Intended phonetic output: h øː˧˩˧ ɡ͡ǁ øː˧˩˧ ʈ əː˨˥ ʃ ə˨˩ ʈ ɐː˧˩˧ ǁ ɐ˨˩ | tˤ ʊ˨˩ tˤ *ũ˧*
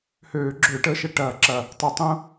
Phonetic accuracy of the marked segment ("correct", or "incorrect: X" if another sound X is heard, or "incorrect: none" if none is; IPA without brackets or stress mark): correct